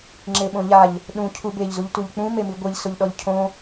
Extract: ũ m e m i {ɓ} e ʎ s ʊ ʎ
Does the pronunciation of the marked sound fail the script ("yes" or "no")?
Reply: yes